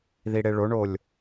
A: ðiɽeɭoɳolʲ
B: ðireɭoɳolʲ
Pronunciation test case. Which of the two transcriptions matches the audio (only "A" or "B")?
A